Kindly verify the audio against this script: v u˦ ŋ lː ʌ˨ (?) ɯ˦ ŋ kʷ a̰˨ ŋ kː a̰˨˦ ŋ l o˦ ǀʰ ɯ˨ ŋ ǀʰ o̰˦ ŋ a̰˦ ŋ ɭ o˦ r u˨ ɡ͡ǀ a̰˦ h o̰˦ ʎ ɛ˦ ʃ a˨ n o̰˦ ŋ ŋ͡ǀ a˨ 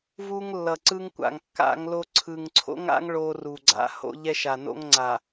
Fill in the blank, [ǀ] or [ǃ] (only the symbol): ǀ